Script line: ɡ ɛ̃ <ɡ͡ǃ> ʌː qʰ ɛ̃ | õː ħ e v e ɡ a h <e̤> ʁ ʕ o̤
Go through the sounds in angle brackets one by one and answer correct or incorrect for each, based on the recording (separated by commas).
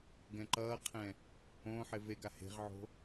incorrect, correct